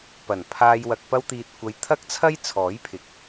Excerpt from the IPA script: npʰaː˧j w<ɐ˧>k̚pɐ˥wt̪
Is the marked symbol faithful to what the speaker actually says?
yes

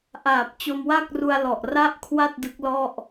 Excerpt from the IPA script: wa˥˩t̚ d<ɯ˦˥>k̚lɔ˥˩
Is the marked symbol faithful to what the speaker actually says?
yes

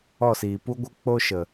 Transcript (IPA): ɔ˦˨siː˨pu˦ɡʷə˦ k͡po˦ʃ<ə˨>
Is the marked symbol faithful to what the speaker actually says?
yes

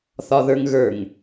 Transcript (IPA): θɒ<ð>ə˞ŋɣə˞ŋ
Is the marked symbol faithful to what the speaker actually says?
yes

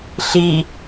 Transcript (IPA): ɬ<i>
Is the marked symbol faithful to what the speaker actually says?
yes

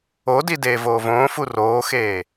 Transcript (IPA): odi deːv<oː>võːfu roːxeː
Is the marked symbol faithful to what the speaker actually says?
yes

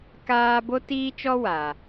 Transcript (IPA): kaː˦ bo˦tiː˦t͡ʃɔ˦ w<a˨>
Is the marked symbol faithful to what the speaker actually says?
yes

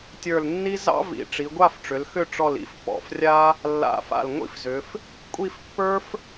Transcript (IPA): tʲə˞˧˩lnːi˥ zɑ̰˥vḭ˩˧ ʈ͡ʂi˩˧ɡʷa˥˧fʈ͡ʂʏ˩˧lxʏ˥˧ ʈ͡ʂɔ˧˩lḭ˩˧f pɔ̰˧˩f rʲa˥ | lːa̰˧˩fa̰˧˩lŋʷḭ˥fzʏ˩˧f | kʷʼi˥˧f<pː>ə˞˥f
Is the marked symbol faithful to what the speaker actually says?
yes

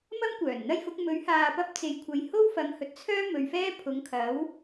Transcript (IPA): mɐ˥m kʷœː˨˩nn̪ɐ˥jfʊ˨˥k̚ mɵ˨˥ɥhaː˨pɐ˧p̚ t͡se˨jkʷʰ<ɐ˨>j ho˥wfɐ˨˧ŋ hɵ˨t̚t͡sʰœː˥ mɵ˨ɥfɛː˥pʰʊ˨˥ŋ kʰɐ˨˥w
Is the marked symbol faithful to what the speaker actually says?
yes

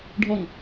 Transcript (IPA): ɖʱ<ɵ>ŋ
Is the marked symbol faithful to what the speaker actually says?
no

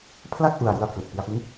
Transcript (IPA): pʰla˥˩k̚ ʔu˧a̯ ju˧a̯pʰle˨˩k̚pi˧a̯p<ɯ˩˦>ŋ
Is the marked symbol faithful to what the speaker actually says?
no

